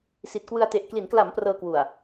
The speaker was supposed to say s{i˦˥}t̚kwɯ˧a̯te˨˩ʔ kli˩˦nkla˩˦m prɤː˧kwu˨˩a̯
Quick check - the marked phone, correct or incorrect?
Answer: incorrect